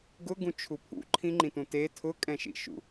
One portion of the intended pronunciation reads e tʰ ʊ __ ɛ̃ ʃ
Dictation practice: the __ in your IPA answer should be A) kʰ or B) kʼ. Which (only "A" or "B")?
B